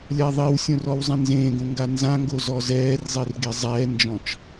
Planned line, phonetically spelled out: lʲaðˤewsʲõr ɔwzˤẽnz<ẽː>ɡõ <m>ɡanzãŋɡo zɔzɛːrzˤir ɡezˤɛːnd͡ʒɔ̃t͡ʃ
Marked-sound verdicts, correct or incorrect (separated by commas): correct, incorrect